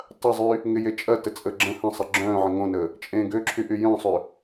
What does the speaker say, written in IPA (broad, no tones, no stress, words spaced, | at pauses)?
tˤɐzˤyː | ŋɪjet͡ʃʼɐ tət͡sʼəːɡ͡ǁə̃ hə̃sˤɐ ɡ͡ǁœ̃ː ʕə̃ŋõnəː | t͡ʃʼẽːɡøǁʰy ʔyjœ̃sˤʏː